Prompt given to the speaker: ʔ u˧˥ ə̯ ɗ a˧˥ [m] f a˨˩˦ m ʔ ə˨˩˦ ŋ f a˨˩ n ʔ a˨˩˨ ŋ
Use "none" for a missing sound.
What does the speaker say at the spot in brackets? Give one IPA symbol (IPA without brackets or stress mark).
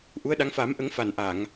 ŋ